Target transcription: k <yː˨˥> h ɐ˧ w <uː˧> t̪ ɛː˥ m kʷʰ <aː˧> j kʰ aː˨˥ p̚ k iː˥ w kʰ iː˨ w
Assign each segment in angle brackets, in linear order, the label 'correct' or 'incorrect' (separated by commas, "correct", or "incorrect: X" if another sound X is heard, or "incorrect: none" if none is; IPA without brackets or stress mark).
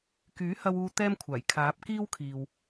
correct, correct, incorrect: aː˨˩